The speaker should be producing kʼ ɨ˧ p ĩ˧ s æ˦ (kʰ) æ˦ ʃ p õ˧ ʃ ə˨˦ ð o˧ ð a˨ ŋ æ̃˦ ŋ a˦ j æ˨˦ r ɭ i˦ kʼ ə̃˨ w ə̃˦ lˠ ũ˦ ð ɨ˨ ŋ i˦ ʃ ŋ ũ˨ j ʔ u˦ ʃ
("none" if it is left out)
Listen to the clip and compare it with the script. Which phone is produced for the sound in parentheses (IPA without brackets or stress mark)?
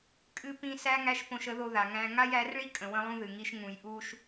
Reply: ŋ